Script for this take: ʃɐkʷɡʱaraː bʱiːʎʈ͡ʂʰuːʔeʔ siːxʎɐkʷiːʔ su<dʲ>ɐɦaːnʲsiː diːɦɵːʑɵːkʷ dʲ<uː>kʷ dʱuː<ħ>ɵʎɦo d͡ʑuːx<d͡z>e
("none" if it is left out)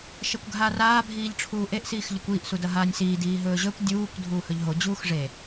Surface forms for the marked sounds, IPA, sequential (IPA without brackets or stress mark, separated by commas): d, uː, h, ʐ